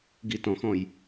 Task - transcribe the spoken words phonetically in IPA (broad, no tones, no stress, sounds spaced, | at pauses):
ɡ i t ɔ̃ x ɔ̃ j